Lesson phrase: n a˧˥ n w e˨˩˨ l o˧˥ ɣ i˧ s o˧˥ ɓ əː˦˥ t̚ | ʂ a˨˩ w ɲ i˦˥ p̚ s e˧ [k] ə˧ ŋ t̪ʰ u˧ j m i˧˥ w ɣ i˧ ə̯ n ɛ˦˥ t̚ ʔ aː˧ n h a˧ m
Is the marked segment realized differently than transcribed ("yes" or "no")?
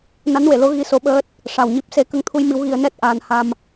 no